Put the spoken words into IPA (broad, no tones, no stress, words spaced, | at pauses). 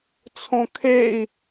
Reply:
t͡sʰõkʰei̯